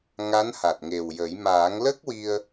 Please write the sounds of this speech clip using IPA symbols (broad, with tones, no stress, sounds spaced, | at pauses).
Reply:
ŋ a˧˥ n h a˨˩ t̚ ŋ e˨˩ w j ə˨˩˦ j m aː˨˩˦ ŋ l ə˦˥ k̚ w i˧ ə̯